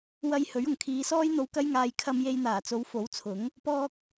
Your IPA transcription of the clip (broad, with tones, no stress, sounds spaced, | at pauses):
w ɐ˧ j h ɵ˨˥ ɥ ʊ˨˩ ŋ kʰ iː˨˧ s ɔː˥ j n̪ o˧ w k ɐ˥ j ŋ aː˧ j kʰ ɐ˧ m j e˧ j n̪ aː˨˩ t͡s o˨˧ w f o˨˥ w t͡sʰ ʊ˨˥ ŋ | p ɔː˧ k̚